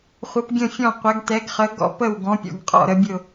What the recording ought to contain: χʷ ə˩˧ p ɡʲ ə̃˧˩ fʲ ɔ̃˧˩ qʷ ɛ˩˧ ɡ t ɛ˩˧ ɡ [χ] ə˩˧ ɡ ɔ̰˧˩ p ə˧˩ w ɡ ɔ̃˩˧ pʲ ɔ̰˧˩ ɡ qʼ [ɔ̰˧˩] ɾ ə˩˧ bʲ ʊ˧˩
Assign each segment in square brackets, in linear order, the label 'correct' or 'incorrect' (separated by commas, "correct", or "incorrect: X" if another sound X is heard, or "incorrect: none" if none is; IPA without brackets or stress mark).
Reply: correct, correct